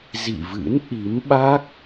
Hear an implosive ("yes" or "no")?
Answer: yes